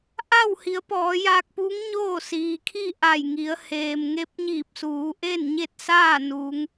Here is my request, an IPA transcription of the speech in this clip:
ʔ a˥˨ w h i˩˧ ə̯ p ɔː˩˧ j aː˧ k̚ p uː˧˥ ŋ ɲ oː˥˨ s iː˩ kʰ i˥˨ ʔ a˧˩ j ŋ i˩˧ ə̯ h eː˩ m ŋ e˧˥ p̚ ɲ iː˧˩ p̚ s uː˩˧ ʔ e˥˨ n ɲ e˥˨ t̚ s aː˥˨ n uː˩˧ ŋ

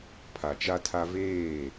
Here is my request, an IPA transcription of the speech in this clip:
pʰ a˨ t͡ʃ a˦ tʰ a˦ v eː˦˨

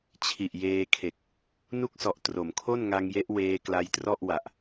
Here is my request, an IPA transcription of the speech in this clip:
t͡ɕʰ i˨˩ ʔ j eː˧ kʰ e˨˩ k̚ | n u˥˩ k̚ s ɔ˨˩ ʔ t r o˩˦ m kʰ o˥˩ n ŋ a˧ ŋ j e˦˥ ʔ w eː˧ k l a˧ j t r ɔ˥˩ ʔ w a˨˩ ʔ

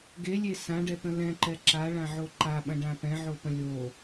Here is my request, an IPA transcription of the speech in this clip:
ɡ e lʲ e s ã ɖ ɛ t̪ ə̃ l ɛ̃ ǃ ɛ ǁ a ɭ ã ʕ o ǃ a ɓ ɐ̃ ɖ ã p ɛ̃ ʕ o p ə̃ lʲ o

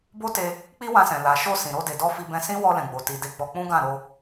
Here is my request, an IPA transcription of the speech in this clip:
b o˦ t e˧ | k͡p i˦ w ã˧ s ɛ̃˨ l a˨ ʃ o˧ s ĩ˨ ɾ o˧ d e˨ d ɔ˧ f i˧ b ɛ̃˧ s ĩ˦ w ɔ˧ l ɛ̃˨ ɡ͡b o˨ t i˨ d e˧ ɡ͡b ɔ˧ k͡p ũ˦ ɡ ã˦˨ ɾ o˧

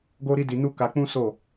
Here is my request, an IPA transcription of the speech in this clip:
ɡ o˦ ɾ i˦ d i˧ n u˦ k a˧ k͡p ũ˦ s o˦˨

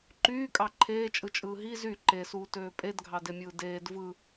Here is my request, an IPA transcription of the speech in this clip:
ǃ yː kʼ ɑ ǃʰ eː t͡ʃʼ ɯ t͡ʃʼ ɯː ɦ i z y ǃ e s uː t øː pʼ e d ɡʱ ɑ d e mʲ ɯː d eː d v ɯ

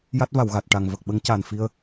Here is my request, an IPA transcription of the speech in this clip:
j a˦˥ t̚ v a˨˩˨ w ɣ a˨˩ t̚ ʈ a˨˩ ŋ v ə˨˩ k̚ ɓ ə˧˥ ŋ c a˨˩ n f i˧ ə̯

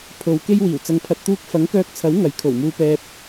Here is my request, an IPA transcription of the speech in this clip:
pʰ o˨˧ w k e˥ j w iː˨˩ w t͡s ɐ˧ ŋ pʰ ɐ˧ t̚ t̪ uː˥ k̚ f ɐ˨˥ ŋ k œː˧ k̚ t͡sʰ ɐ˨˥ w ŋ ɐ˨˥ j kʰ o˨˩ w m uː˧ p ɛː˧ p̚

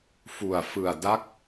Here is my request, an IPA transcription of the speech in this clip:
f u˨˩ a̯ f ɯ˨˩ a̯ d a˦˥ k̚

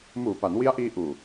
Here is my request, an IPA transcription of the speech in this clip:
m uː˨˩ p a˩˦ n w i˦˥ a̯ ʔ iː˧ ʔ uː˨˩

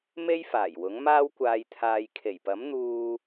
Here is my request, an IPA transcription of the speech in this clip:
m e˥ j f aː˨˩ j w ʊ˨˥ ŋ m aː˥ w kʷ aː˧ j t̪ʰ aː˧ j kʰ e˨˩ j p ɐ˨˥ m n̪ uː˧

